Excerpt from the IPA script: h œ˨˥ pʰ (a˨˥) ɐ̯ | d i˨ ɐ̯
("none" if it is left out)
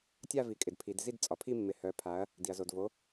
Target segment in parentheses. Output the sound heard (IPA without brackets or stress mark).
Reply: a˨˥